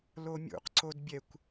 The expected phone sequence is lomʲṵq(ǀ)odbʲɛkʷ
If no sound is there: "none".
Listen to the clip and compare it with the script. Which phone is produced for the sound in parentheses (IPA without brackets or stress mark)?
ǀ